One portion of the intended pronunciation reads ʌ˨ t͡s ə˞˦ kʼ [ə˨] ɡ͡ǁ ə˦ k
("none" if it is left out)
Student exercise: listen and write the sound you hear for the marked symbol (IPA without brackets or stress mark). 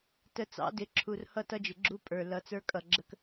ʌ˨